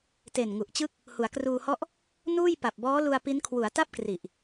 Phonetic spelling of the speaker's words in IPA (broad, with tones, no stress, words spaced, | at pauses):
te˨˩n ŋu˨˩ʔt͡ɕɯ˥˩k̚ | hu˩˦a̯kruː˧hɔ˥˩ʔ | nuː˥˩j pa˨˩p̚bɔː˦˥lu˧a̯ pi˦˥n kʰwu˩˦a̯ta˥˩p̚kri˨˩ʔ